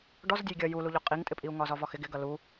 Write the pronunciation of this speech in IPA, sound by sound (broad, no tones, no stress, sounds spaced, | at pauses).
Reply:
ɖ ɔ z dʲ ɛ j ɡʲ ʌ j u l u ʎ ɔ qʼ i ŋ tʼ ɪ pʼ i u̯ ŋ ɒ z ɒ v ɒ x ɪ ɡ ɪ ɡ ʌ l u